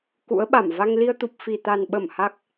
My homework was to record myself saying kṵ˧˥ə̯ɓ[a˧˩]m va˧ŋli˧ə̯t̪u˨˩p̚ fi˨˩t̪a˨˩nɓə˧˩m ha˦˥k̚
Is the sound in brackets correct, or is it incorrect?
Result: correct